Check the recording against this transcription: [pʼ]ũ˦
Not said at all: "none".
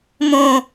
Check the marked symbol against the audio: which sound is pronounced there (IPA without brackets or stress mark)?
m